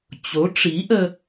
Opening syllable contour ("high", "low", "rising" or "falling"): rising